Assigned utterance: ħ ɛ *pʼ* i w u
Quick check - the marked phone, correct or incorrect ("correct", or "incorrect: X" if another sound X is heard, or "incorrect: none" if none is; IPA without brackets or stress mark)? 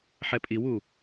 correct